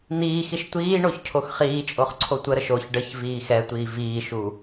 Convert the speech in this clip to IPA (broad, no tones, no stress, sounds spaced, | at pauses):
n̪ iː x i ʃ tʷ iː ɳ o ç cʰ o x χ iː t͡ʃʼ o χ ǀʰ o tʷ ə ɾ ə ʃ o ç ɖ ə ç v iː x ɛ tʷ iː v iː ʃ u